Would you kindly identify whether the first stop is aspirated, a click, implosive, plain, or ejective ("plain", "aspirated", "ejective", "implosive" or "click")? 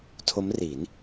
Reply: aspirated